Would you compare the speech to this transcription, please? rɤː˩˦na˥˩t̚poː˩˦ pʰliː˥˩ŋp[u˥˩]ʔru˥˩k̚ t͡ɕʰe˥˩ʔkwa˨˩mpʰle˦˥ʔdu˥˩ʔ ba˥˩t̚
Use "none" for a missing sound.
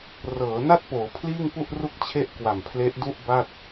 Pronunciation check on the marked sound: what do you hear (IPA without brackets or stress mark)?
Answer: u˥˩